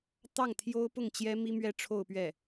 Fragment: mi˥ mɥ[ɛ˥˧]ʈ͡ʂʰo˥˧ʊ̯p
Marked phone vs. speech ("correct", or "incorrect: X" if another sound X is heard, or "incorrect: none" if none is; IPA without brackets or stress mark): correct